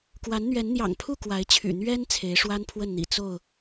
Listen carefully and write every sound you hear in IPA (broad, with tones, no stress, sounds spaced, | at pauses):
k w a˨˦ n n̪ ɥ ɛ˨˦ n n̪ j ɑ̰˨˩ ŋ pʰ u˥˨ k w a˨˦ ɪ̯ t͡ɕʰ y̰˨˩ n̪ ɥ ɛ˦ n t͡sʰ e˨˦ ɪ̯ ʂ w a˦ n pʰ w ə˥˨ n n̪ ḭ˨˩ t͡s o˥˨ ʊ̯